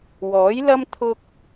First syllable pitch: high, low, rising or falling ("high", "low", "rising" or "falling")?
rising